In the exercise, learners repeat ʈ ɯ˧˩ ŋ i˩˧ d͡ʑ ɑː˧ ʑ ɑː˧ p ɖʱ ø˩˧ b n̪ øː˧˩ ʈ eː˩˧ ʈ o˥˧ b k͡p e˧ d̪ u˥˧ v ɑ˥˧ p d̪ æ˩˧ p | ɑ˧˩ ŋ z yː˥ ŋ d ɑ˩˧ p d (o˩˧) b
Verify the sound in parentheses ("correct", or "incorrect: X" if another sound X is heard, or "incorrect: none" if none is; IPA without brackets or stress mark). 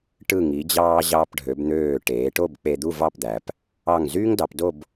incorrect: o˥˧